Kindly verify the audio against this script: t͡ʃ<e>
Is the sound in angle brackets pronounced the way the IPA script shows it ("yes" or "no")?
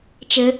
no